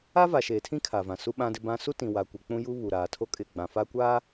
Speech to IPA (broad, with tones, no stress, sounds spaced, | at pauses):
a˦ v a˨ ʃ eː˨ tʰ ĩ˦ kʰ a˨ v ã˨ s u˦ ɓ ã˦ d ɪ˦ b ã˦ s u˦ t ĩ˨ w a˨ kʷ ɪ˨ k͡p ũ˦ j u˦ β u˨ ɾ aː˨ tʰ o˦ kʼ ɪ˦˨ ɡ͡b ã˨ f a˦ kʷ aː˦